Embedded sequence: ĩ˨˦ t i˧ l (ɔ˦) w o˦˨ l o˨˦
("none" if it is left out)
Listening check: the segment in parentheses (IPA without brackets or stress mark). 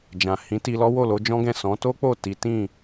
ɔ˦